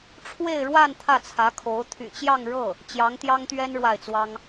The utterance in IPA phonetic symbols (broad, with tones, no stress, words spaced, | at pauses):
ʈ͡ʂʰwe˥˧ɪ̯ɻwa˥˧n t̪ʰä˥˩t͡sʰä˧˥kʰo˧˥ʊ̯ t̪ʰy̰˨˩t͡ɕjɑ˥˧ŋɻɤ˥˩ | t͡ɕjɑ˧˥ŋt̪jɑ˥ŋt̪ɥɛ˥n ɻwa˥˩ɪ̯t͡swɑ˥ŋ